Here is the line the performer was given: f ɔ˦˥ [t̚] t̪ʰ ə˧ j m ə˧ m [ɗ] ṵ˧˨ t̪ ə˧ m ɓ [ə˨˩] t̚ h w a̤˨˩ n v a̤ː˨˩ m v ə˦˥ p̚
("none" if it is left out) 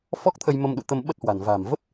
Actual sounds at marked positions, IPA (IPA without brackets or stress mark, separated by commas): k̚, ɗ, ə˦˥